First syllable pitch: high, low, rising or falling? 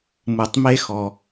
low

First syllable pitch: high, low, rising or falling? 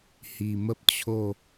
low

